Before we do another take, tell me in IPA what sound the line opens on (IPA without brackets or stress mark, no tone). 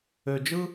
ø